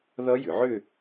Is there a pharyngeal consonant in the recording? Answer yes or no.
yes